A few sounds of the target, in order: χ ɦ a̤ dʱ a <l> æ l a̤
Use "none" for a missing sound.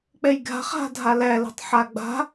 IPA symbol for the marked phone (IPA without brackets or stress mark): l